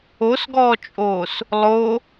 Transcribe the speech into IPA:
o s ɡ ɔː t͡ʃʼ oː s | lˠ o

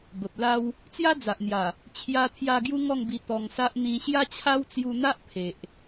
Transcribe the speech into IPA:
b ə˨ p̚ l a˦ w | t͡s j a˦ d͡z a˨ ʔ n̪ j a˨˩ | t͡ɕʰ j a˧ t̪ʰ j a˧ ɡ j u˦ ŋ ɔ˥˧ ŋ b i˧ t̪ ɔ˧ ŋ s a˦ ʔ n̪ ĩ˧ ɕ j a˦ t͡ɕʰ a˦ w t͡s j u˧ n̪ a˦ ʔ pʰ e˨ ʔ

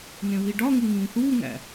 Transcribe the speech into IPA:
n ẽ β i ɖ ɒ ŋ u ŋ ĩː θ uː ŋ æ̰

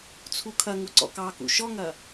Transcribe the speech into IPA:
t͡sʰ u kʰ ɐ ŋ u ǀ ɔ̰ k ɑ k ṵ ʃ ɔ ŋ ɐ

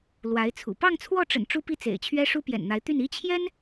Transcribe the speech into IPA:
l w a˧˥ ɪ̯ t͡sʰ ṵ˨˩ p ɑ˥˧ ŋ t͡sʰ w ɔ˥˩ ʈ͡ʂ ə̰˨˩ n ʈ͡ʂ u˥ p i˥˩ t͡s ḛ˨˩ ɪ̯ t͡ɕʰ ɥ ɛ˥ ʂ u˥ p j ɛ̰˨˩ n n̪ a˧˥ ɪ̯ t̪ y˥˩ n i˥ t͡ɕʰ j ɛ˥ n

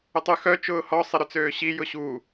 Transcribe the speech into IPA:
ʏ tˤ y x œ t͡ʃ ʊː h ɔ sˤ ɪ ɾ ʏ t͡s øː ɕ i j ʊ ɕ u

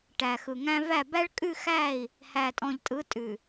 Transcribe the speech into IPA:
ʈ æ˨ x ɯ˨ ŋ æ̃˦ v æ˦˨ b æ˦ ɭ kʼ ʉ˦˨ x æ˦˨ i̯ | h æ˨ tʼ ɔ̃˨ ʎ tʼ ɯ˨˦ tʼ ʉ˨

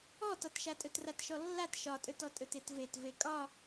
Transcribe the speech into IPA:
ɔ t ɒ t ʃ a tʼ ɵ t r a t ʃ ɔ lː a t ʃ ɒ tʼ ɵ t ɔ tʼ ɵ t e t v e t v e kʼ ɒ

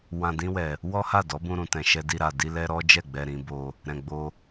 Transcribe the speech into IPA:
w ã˧ d ĩ˦ w ɛ˧ | w ɔ˦ h a˦˨ d ɔ˨˦ b ũ˧ ɾ ũ˨ t ɛ̃˧ ʃ ɛ˦ d i˦ ɾ a˧ d i˦ l ɛ˦ ɾ ɔ˦ d͡ʒ ɛ˦˨ ɡ͡b ɛ˧ ɾ ĩ˦ b o˦ | ɾ ɛ̃˧ ɡ͡b o˦

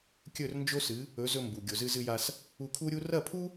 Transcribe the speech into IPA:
kʲ ɵ˥˩ r n d͡ʒ o˥ s ɨ˩˥ | ɵ˩˥ z ɵ˧ m b u˩ ɡʲ o˩ z ɨ˧ z ɨ˧ j a˧ s | u˧ kʰ u˥ ɾʲ u˥ r ɐ˥˩ pʰ u˥

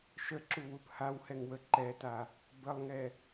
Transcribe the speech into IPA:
ʃ ə ǁ u w u p h a w h ɛ ŋ w ə ǃ ɛ t a | b ə lˠ ŋ ɛ

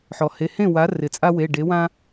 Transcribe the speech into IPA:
ħ ɔ˩ h e˩˧˩ h ẽ˥˩ w a˩˥ r ɪ˩ t͡sʼ a˦ w e˩˧˩ ɖ e˩˥ w ã˦

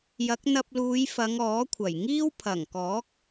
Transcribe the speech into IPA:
j ɐ˨˥ k̚ n̪ ɐ˧ p̚ l uː˨˧ j f ɐ˨˧ ŋ ɔː˨˥ kʷʰ ɐ˨˩ j ŋ iː˥ w pʰ ɐ˨˩ ŋ k ɔː˨˥ k̚

